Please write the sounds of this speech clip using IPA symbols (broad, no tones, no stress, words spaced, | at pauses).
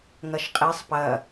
ŋɐʃqʼisˤ pɐ